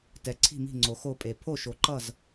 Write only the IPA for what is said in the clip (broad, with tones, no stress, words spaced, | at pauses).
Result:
tɛ˨ ǀʰi̤˥˨mi̤˥˨ ŋ͡ǀo˨xo˥˨pʼe˨ pʰo˥˨ʃo˨ǃʌ˥˨z